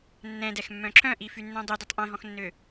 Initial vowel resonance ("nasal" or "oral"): nasal